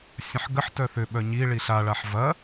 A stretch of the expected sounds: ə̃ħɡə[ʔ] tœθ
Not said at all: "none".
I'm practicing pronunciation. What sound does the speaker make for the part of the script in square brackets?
ħ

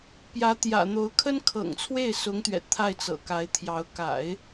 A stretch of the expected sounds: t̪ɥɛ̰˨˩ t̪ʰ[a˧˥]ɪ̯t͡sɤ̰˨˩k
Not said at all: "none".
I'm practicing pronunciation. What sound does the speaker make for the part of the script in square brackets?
a˥˩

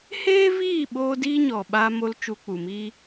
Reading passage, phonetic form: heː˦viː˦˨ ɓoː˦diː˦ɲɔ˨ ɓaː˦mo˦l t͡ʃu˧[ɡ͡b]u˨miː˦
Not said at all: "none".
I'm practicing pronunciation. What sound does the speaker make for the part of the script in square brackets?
k͡p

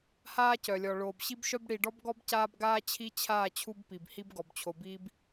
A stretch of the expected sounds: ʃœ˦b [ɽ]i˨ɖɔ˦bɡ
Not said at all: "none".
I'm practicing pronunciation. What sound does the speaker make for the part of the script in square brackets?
ɽ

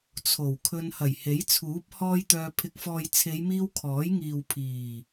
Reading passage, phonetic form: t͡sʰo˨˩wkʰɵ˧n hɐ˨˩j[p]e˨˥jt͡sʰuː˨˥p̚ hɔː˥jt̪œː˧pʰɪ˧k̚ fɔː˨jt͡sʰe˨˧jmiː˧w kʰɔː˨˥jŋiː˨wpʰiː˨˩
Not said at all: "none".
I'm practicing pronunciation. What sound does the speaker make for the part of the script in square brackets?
h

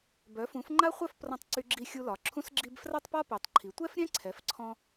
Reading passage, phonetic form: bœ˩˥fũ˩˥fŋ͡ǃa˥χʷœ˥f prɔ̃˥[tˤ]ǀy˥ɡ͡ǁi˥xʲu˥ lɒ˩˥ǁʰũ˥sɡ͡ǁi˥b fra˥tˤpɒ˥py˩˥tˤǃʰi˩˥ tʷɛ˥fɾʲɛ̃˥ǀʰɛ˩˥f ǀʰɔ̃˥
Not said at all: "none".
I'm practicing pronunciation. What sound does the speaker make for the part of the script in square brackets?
tˤ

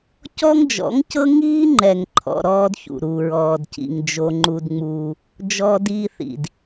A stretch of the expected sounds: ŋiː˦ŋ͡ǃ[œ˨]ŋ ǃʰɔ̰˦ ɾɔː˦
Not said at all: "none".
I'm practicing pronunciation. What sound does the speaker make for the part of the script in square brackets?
ɛ˨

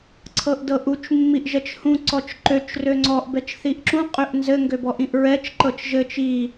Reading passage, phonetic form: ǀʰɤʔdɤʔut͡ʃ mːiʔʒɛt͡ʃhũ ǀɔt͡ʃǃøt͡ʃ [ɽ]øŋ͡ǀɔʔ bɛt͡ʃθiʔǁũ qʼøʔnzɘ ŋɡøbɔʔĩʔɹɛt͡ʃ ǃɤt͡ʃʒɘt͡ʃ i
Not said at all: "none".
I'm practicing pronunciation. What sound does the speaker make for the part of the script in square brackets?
r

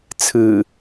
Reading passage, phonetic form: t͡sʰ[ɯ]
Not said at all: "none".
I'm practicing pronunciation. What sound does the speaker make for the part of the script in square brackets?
ɯ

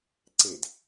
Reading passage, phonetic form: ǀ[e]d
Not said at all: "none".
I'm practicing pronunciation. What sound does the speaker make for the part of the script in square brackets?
e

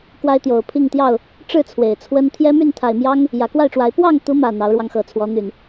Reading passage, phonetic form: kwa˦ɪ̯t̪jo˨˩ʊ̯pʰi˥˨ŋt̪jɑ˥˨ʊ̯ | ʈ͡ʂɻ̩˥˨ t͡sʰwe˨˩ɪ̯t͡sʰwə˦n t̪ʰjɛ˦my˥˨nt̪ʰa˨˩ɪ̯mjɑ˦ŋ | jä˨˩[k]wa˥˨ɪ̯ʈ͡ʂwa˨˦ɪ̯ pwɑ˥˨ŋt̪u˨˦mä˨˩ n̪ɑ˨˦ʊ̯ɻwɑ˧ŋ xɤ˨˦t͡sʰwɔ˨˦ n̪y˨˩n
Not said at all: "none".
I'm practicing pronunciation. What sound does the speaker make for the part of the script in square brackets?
k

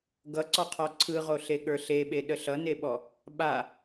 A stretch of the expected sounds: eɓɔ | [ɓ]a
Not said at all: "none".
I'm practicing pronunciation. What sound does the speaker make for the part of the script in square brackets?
ɓ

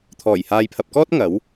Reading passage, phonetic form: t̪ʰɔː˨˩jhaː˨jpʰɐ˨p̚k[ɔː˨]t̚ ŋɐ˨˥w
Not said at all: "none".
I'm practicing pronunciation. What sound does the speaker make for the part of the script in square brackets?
ɔː˥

